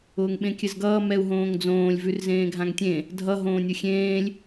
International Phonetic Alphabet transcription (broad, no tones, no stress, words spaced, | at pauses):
ʊːŋɓẽkʲɘzɡʌː mɛu̯ɦõːŋd͡zõːlʲ vʉrzẽːɡʱãŋtʲẽ | dʱʌ ɦõːnʲʊxʲẽːlʲ